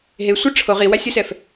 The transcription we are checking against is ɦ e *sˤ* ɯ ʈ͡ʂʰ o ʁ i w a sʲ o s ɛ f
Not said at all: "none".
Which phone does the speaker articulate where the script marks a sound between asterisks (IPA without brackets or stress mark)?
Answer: sʷ